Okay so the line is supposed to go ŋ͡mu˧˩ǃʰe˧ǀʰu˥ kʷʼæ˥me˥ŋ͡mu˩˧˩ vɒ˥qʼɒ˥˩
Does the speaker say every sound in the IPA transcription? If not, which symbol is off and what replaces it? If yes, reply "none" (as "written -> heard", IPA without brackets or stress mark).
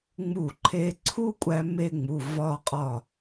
none